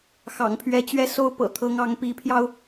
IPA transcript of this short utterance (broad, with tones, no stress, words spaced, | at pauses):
xɑ̰˨˩ŋpʰɥɛ˧˥t͡ɕɥɛ˥˩so˥ʊ̯ pɤ̰˨˩ t̪ʰɤ˧˥ŋ ɑ˧˥ŋpi˧˥pʰjɑ˧ʊ̯